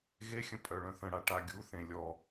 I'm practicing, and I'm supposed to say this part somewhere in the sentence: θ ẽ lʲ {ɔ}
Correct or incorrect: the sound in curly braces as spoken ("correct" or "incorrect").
correct